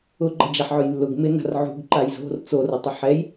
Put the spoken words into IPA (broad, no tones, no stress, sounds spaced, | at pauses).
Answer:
ʊ ɡ͡ǃ ɐ d͡ʒ a ħ ʕ ʊ j lː ʊ ɡ m ɪ n a̤ r ʕ ṳ ɡ ǃ a j z o̤ r t͡s o r ɐ tˤ ɐ ħ ɛ j